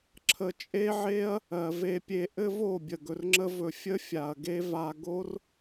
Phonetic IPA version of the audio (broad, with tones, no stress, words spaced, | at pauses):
ǁʰə˧t͡ʃʼe˦ʕe˦ɐ̯ | ɜ˨ve˧pʲe˧ ʔɘ˦vo˦˨bʲə˨ ɡɵ˧rŋ͡ǁə˦vɵ˧ fʲə˦fʲa˨ɐ̯ɡe˦va˧ ɡo˦r